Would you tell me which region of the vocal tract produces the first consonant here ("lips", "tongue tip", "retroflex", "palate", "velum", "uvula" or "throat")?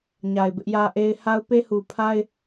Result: palate